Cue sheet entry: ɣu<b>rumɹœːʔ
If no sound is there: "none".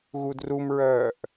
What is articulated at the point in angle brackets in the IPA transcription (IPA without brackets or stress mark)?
d